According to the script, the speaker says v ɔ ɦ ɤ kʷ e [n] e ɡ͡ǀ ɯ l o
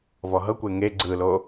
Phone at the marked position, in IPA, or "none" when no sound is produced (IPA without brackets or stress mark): ŋ